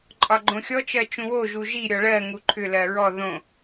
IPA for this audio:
ǃʼ ɒ ɡ͡ǃ õ xʲ ɔ t͡ʃ ɜ t͡ʃ ũ w o ʒ u ʒ i ɾʲ ɔ ɭ ɜ ŋ u ǃʰ ʏ l ɜ ɹ ɔ ð õ

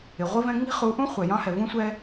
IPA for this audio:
ɪ˨ ʁʷ i˦ v ɛ̃˦ ŋ͡m i̤˦ χ u˨˦ ʔ ũ˦ χʷ ɛ˨ j ɑ̃˦ h ɛ˨ v ũ˦ sʷ ɛ˦

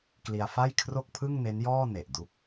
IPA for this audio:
k l i˧ a̯ f a˥˩ j kʰ r o˥˩ k̚ pʰ ɯ˥˩ ŋ n e˦˥ n j ɔː˥˩ n e˨˩ ʔ d u˦˥ k̚

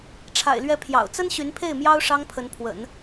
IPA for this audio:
ʈ͡ʂʰ a̰˨˩ ɪ̯ l ɥ ɛ˧˥ pʰ j ɑ̰˨˩ ʊ̯ t͡s ə˥ n ɕ y˧˥ n pʰ e˥˩ ɪ̯ m j ɑ˥ ʊ̯ ʂ ɑ˥ ŋ pʰ ə˧˥ n pʰ w ə̰˨˩˦ n

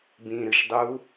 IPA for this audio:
b ĩ ɾ ɨ ʃ dˤ uː

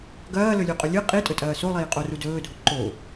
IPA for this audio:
ɡ ɐː l ɵ lʲ ʉ qʼ ɵ lʲ ɨ qʼ i tʼ ɵ tʼ ɐː s o lˠ iː qʼ o r u d ɵː dʱ o ǃ o

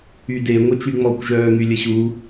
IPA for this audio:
y d e ŋʷ œ t͡ʃ y ŋ͡m ɔ kʷ ʒ œː ŋ y lʲ ə ɕ u

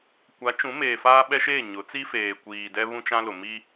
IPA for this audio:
kʷ a˨˦ t͡ʃ ũ˨˦ m eː˨ f aː˦ ɓ ɛ˦ ʃ eː˦˨ ɲ ʊ˨˦ t͡s i˦ f eː˨ kʷ iː˨ d ɛ˦ β ũ˦ t͡ʃ ã˦ l ʊ˨ m i˦

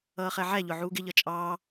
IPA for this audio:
ʌː χ ɛ ʕ æ ʎ ʊ ʕ uː ɡ ɪ ʎ ʌ t͡ʃʼ ɑː

